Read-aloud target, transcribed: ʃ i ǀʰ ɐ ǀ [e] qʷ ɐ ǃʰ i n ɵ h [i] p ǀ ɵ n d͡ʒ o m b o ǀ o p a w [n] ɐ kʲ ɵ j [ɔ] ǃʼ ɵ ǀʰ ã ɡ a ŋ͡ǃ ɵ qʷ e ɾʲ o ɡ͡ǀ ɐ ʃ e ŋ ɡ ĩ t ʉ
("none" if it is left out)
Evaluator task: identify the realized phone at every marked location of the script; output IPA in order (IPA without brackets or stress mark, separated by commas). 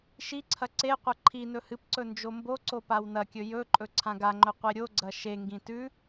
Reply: e, ɨ, n, ɵ